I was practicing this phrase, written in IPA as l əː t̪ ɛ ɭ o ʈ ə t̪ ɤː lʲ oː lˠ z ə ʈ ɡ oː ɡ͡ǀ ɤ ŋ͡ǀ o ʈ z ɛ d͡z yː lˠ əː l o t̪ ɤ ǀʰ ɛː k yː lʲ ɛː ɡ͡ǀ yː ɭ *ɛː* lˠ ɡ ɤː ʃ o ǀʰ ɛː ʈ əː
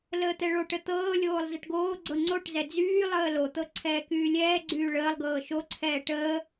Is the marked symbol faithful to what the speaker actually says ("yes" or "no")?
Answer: no